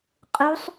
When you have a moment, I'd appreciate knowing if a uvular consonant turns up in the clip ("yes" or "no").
yes